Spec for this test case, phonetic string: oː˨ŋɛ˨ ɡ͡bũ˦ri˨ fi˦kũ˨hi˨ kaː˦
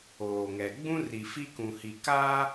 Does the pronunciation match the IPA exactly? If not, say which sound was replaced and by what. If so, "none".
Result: none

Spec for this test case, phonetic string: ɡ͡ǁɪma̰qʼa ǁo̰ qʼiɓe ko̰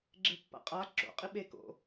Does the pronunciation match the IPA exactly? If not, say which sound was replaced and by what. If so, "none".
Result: m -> pː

